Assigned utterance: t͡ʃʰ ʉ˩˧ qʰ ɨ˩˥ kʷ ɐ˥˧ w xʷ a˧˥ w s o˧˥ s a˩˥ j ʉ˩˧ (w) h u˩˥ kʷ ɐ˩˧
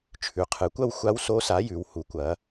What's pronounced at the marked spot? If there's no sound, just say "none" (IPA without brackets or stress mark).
w